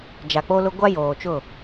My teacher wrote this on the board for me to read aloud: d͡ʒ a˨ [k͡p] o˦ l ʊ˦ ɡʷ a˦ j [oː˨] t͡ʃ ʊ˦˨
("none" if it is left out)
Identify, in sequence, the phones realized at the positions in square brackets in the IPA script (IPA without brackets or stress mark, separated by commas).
k͡p, oː˨